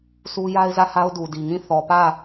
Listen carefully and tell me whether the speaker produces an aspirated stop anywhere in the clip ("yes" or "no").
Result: no